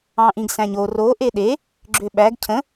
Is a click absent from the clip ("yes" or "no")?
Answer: no